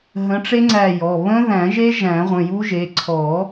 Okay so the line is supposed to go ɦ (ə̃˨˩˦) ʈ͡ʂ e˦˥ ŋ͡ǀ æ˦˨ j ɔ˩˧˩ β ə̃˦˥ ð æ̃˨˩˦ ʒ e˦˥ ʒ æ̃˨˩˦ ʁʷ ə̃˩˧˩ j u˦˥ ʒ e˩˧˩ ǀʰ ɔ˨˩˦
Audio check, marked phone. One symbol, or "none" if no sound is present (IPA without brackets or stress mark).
ə̃˨˦